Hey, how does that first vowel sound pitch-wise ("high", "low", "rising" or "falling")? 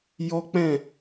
high